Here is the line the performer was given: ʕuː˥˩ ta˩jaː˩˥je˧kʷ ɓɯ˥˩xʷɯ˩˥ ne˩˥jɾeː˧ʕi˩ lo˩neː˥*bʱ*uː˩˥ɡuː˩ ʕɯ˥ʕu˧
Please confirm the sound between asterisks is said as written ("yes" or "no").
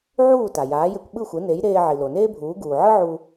yes